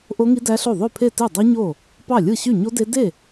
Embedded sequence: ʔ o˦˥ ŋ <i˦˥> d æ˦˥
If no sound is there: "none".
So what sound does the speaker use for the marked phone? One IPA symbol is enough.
i˦˥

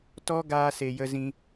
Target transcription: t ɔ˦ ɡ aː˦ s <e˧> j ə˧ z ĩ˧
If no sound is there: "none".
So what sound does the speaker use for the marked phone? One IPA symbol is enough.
e˧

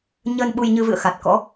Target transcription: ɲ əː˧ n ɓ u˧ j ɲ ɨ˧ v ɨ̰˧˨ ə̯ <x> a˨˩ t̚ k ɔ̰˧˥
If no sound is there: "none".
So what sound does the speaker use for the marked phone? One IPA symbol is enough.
x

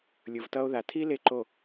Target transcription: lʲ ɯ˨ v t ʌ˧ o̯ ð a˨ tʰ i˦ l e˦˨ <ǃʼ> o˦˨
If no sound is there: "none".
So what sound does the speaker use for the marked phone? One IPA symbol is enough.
ǃ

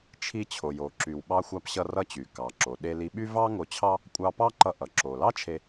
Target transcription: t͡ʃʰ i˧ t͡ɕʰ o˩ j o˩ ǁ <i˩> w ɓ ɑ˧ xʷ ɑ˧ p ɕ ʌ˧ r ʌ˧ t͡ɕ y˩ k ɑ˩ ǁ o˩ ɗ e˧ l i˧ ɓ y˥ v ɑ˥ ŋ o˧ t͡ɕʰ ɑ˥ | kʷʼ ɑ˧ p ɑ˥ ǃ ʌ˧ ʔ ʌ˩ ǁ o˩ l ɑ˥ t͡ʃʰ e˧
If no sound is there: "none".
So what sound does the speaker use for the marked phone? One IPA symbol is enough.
y˩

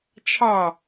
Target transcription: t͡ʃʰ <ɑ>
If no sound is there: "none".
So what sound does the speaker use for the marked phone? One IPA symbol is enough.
ɑ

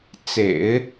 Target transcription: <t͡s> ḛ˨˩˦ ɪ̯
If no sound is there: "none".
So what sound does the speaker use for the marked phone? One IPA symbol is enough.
t͡s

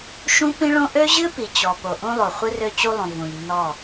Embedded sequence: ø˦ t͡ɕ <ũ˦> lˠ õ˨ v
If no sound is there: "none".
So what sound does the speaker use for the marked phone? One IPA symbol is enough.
u˦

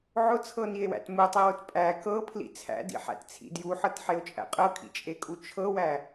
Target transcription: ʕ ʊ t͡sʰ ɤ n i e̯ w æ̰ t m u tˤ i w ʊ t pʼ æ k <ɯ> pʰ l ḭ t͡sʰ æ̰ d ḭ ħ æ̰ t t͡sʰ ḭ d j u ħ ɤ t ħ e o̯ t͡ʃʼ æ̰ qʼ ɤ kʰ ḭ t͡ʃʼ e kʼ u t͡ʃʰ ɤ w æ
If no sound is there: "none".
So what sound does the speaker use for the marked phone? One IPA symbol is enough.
ɤ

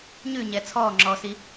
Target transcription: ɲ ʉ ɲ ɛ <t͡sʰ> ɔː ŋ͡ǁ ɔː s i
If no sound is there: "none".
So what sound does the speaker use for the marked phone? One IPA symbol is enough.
t͡sʰ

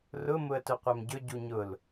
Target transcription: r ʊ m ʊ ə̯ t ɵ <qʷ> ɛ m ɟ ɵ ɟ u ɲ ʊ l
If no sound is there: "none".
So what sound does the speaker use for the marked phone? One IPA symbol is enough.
qʷ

